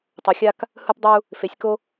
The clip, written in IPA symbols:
tˤ o˨˦ xʲ a˦ k | h ɯ˦ p dˤ u˦ | f e˨˦ sʲ k o˦

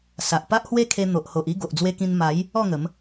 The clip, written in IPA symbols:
s a˨ ʔ p a˦ ʔ h w e˦ kʰ e˧ n̪ o˨ ʔ h o˨ ʔ i˥˧ ɡ o˨ ʔ d͡z w e˧ k ĩ˧ n m a˨˦ j | ɔ˥˧ ŋ ə˨˦ m

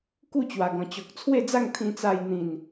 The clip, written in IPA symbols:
k u˥˧ t͡ɕ w a˨˩ ɡ ɔ̃˨˩ t͡ɕ ɔ˨ k̚ t͡sʰ w e˥˧ d͡z a˥˧ ŋ t̪ʰ ĩ˧ t͡s a˧ j n̪ ĩ˨˩ n

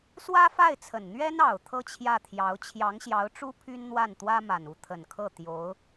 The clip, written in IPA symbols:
s w ä˥ f a˥˩ ɪ̯ t͡sʰ ə˨˩ n n̪ ɥ ɛ˥ n ɑ˨˩ ʊ̯ t̪ʰ ɤ˥˧ t͡ɕʰ j ä˥˩ t̪ʰ j ɑ˧˥ ʊ̯ t͡ɕʰ j ɑ˧˥ ŋ ɕ j ɑ˧˥ ʊ̯ ʈ͡ʂ u˥ pʰ y˥ n n̪ w a˥˩ n t̪ w ä˥ m a˨˩ n u˧˥ t̪ʰ ə˨˩ n kʰ ɤ˥˩ t̪ j o˧˥ ʊ̯

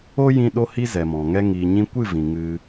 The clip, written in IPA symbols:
o˦ j ĩ˧ ɗ o˦ h i˦ z ɛ˨ m ɔ̃˨ ŋ ɛ˧ ŋ iː˨ ɲ ĩ˧ kʷ ɨ˦˨ v ĩ˨ ŋ ɨ˧

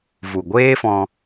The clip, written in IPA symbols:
v u˨ ɡʷ eː˦ f ɔ̃˧

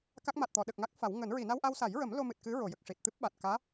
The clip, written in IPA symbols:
k a˦˥ k̚ m a˨˩ t̚ t̪ ɔ˨˩˨ ɗ ə˨˩ k̚ ŋ a˦˥ k̚ f a˨˩˦ w ŋ əː˨˩˦ n ɹ i˨˩˨ n a˧ w ʔ a˧ w s a˨˩˦ j ɹ ə˨˩˦ m l o˧ m ɨ˨˩ t̚ k ɨ˧˥ ɹ o˨˩˨ j ə˨˩ k̚ ʂ i˨˩ t̚ t̪ ɨ˦˥ p̚ ɓ a˨˩ t̚ k aː˧˥

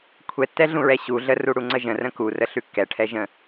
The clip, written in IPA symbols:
kʷʰ ɛ tː ɛ ɮ ũ ɹ ɛ ɕ u ɮ ə r u ɽ u ŋ͡ǀ ə ʒ ə̃ r ə̃ k u r ə ɬ ʉ kː ɛ ʈʰ ɛ ʒ ə̃

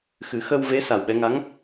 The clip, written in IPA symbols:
x ɨ˨˩˦ x ə˧ w v e˧˥ s a˨˩ w ɓ ɛ˧ ŋ a˧˥ ŋ

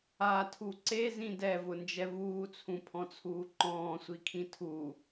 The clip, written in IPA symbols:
a tʰ u ǀ e z ĩ d ɛ v ʊ n d͡ʒ ɛ v uː t͡sʰ ũ pʰ ɔ̃ t͡sʰ uː ǃ ɔ̃ː sʷ i kʰ ĩ tʰ u

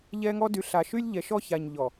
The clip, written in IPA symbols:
ʎ ɛ˦ ŋ ɔ˦ d y˨ ɬ a˨ ʃ y˦ lʲ ʎ ɛ˨ ʃ ɔ˦ ç a˨ ɲ ʎ ɔ˨

